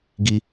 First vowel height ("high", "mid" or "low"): high